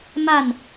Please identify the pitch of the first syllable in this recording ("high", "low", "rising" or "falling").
falling